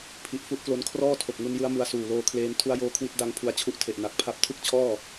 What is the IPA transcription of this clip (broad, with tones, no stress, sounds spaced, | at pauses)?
pʰ i˨˩ ʔ f u˦˥ ʔ k l o˧ n kʰ r ɔː˥˩ tʰ o˨˩ k̚ ŋ u˧ n j ɯ˦˥ a̯ m u˧ a̯ s uː˨˩ l oː˧ kʰ l eː˧ n tʰ u˦˥ a̯ j oː˦˥ kʰ w i˦˥ t̚ d a˧ ŋ pʰ u˧ a̯ t͡ɕʰ u˦˥ ʔ tʰ e˨˩ ʔ n a˨˩ k̚ pʰ a˦˥ p̚ tʰ ɯ˥˩ k̚ t͡ɕʰ ɔː˥˩